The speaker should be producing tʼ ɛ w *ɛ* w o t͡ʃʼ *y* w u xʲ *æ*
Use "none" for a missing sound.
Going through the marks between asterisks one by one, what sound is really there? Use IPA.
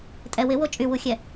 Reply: ɪ, y, ɛ

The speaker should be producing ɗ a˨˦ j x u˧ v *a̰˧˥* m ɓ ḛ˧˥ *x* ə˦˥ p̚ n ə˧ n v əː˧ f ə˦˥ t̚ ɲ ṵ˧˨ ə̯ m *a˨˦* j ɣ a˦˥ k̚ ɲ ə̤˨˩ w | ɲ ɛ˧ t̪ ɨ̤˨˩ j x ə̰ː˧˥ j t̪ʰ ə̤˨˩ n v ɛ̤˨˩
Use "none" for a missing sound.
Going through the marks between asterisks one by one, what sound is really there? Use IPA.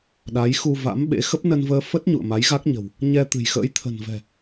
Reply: a̰˧˥, x, a˨˦

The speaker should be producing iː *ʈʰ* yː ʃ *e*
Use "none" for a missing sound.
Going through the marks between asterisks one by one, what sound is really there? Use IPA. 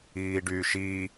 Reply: ɖ, i

